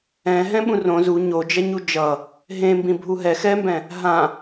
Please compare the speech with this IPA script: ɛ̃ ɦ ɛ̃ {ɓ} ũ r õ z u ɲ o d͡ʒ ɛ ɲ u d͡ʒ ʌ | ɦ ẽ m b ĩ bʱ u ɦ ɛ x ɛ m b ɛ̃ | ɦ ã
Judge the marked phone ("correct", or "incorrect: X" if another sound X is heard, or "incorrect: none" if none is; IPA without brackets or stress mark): correct